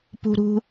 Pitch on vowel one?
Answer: high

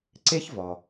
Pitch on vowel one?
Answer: high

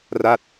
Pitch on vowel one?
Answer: falling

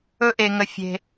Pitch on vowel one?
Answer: high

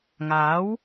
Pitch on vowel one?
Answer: rising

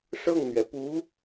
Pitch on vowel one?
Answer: falling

